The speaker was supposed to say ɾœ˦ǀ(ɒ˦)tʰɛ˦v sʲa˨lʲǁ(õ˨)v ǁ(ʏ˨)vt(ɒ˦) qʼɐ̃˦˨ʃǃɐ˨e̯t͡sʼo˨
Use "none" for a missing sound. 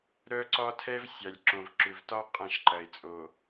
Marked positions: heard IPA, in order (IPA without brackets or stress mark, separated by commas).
ɒ˦, õ˨, ʏ˨, ɒ˦